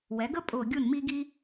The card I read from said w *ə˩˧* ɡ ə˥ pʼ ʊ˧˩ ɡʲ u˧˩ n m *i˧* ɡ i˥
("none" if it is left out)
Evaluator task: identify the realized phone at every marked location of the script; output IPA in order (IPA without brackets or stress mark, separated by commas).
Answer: ɛ˩˧, i˧